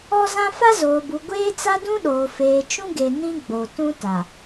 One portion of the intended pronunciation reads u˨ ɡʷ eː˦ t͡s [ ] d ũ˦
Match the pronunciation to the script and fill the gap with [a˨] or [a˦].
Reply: a˦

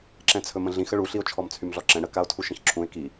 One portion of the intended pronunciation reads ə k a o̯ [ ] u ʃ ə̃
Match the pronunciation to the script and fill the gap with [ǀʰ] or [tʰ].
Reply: tʰ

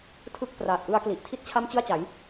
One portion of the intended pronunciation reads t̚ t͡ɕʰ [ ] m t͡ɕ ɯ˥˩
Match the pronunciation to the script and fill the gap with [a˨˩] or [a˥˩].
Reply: a˥˩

